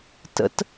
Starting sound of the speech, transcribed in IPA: t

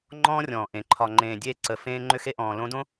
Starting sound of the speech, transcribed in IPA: ŋ͡ǃ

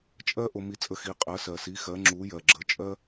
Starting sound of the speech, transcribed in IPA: t͡ʃʼ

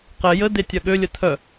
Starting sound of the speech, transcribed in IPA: q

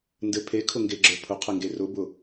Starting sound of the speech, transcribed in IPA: n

